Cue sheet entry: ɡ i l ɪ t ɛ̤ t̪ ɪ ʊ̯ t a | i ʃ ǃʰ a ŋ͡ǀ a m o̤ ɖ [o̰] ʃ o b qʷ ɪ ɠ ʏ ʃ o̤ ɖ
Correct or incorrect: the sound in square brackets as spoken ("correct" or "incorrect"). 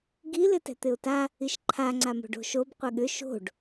incorrect